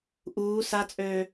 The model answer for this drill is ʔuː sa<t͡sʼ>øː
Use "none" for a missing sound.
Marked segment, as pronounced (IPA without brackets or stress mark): t͡sʼ